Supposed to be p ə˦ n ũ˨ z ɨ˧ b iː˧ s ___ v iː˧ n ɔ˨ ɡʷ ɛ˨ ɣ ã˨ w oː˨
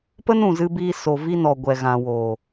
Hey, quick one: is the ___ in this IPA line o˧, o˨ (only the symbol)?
o˨